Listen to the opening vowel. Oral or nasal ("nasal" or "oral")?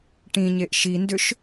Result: nasal